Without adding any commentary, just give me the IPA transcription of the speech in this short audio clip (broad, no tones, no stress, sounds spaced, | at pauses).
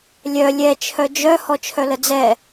lʲ œ lʲ ɛ t͡ʃʰ œ d͡ʒ œ h ɔ t͡ʃʰ œ l ə d͡z ɛ